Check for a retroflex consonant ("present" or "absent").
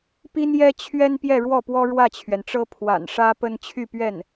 present